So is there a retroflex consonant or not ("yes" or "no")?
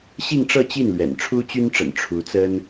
yes